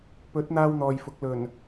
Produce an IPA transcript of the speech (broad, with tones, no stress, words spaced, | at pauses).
pɵ˨˥t̚ n̪aː˥wn̪ɔː˨jfʊ˨˥k̚ lɵ˨˩n